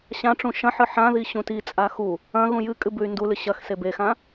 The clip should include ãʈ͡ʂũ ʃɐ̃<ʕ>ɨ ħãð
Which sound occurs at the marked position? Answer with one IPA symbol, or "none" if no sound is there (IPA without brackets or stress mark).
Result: ħ